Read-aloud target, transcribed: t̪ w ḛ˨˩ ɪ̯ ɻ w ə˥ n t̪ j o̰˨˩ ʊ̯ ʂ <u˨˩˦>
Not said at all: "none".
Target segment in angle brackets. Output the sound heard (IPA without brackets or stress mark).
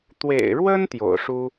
u˥